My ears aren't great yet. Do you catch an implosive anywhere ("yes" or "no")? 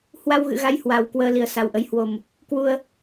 no